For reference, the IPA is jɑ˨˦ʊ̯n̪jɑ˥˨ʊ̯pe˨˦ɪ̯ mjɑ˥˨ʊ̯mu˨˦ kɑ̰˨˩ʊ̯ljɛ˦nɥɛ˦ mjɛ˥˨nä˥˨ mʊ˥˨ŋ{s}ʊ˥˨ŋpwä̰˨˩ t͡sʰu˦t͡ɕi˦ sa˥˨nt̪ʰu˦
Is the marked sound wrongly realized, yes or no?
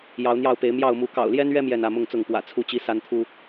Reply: yes